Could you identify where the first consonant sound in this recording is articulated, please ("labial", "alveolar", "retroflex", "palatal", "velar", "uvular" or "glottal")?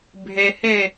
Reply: labial